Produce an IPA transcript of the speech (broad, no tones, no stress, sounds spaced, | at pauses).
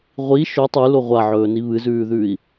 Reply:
ʁʷ i ʃ ɵ tˤ ʉ l o ʁʷ a ʕ ɵː n i β ɨ z ʉː ð ʉː i̯